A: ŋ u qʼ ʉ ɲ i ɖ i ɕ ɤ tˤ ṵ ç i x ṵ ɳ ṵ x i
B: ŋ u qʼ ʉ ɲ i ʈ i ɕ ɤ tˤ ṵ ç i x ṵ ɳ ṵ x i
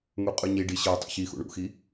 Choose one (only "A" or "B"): A